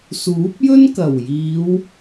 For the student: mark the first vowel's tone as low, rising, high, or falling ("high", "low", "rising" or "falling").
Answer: rising